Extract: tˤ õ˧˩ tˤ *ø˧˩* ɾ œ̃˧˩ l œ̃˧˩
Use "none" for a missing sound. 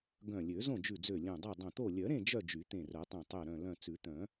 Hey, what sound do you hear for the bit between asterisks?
ø˧˩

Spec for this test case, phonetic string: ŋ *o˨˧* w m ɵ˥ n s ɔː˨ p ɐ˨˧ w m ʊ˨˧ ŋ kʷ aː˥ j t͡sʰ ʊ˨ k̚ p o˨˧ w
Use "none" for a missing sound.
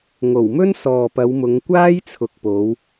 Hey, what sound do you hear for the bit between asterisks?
o˨˩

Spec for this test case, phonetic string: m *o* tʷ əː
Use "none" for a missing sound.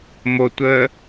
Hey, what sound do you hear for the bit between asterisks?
o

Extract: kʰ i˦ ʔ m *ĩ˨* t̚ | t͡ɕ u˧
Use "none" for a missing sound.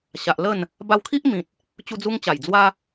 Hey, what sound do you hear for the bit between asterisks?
ĩ˨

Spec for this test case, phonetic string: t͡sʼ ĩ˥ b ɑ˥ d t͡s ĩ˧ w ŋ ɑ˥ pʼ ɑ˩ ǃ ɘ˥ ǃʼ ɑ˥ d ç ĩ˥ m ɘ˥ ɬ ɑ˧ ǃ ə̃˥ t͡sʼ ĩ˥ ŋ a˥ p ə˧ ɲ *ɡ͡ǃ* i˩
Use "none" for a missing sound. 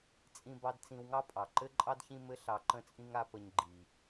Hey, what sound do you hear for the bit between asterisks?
ɡ͡ǃ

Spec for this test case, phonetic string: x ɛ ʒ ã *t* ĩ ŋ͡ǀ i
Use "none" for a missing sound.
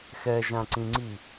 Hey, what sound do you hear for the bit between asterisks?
ǀ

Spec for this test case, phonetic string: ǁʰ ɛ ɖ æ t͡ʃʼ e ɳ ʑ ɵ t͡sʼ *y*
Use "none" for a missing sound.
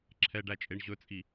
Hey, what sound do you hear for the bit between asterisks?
i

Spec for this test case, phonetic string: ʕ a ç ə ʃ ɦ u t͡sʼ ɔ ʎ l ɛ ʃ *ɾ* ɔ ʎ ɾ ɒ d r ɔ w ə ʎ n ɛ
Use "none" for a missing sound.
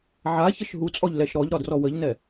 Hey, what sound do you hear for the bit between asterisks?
ɾ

